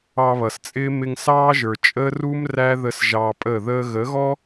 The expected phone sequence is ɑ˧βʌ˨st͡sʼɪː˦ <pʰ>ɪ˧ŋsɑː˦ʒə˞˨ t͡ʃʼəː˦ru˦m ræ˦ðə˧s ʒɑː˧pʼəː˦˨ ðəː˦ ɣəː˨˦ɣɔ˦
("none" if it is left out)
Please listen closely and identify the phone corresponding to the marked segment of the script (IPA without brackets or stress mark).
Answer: m